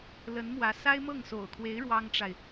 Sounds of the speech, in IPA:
lə˧˥nmwä˧˥ sa˥ɪ̯mɤ˥˩ŋ so̰˨˩ʊ̯kʰwe˧˥ɪ̯ ɻwɑ˥ŋʈ͡ʂa˨ɪ̯

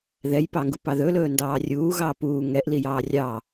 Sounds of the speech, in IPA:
ðɛjpɑŋɡu pɑðɵlɵː ndɑːrʲuːɣɑː puː ŋɛʔ lijɑːrʲɑː

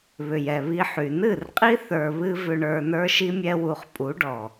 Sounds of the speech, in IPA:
βʏ˨jɛ˨βi˧ħy˨ nɨ˦˨rqʼi˦ θə˞˧βɨ˦ vʏ˧ɳə˞˧ nə˞˦ʃi˦mʲɛ˦wu˧χ pʼu˨˦ɖɔ˨

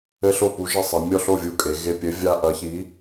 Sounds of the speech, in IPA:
ɘ˦ɬo˥˩pu˨˥ ʒe˦sˤe˩˧mʲɔ˥˩ ɬo˥˩vʲu˧˩kʼe˩˧ ɣe˧˩pʲɘ˨˥ vʲa˦ ʔɐ˨˥çi˨˥

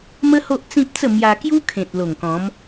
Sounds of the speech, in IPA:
mə˦ ho˦ʔt͡sĩ˦p̚t͡sə˥˧ mja˧kju˦ kʰẽ˨t̚lo˨˩ŋkɔ̃˨˦m

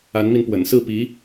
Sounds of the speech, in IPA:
a˧˥nmi˧npwə̰˨˩n sɹ̩˥˩pi˧˥

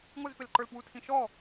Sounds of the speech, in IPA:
ŋʷɪzpɪlǃə˞lpwu tʰĩʃɔ

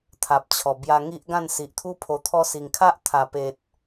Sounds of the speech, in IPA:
t̪ʰa˨p̚t͡ɕʰɔ˨˩ bja˧ŋi˦ʔɡã˥˧n si˨ʔt̪ʰu˦ pʰo˧t̪ʰɔ˦ si˨˩ŋkʰa˦ʔt̪ʰa˨˩pe˨t̚

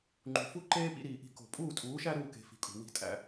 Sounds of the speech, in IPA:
ŋ͡ǃṳ˨fu˦ ǃeː˦pḭ˧ɾiː˨ʔi̤˧ ko̤˨pʼuː˦˨tʼuː˨˦ʃæ˦ ɾuː˦ke̤˧ fi̤˨kʼṳ˨ wi̤˦tʼæ̰˦

